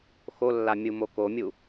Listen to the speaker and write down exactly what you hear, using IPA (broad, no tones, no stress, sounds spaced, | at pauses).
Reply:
x o lː a mʲ u m o k o mʲ u